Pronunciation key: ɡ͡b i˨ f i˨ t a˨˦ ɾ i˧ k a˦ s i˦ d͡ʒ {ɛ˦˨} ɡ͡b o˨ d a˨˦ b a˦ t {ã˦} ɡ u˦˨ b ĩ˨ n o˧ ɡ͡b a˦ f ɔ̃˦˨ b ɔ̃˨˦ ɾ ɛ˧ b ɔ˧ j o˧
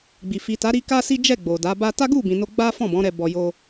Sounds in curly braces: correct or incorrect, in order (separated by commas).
correct, incorrect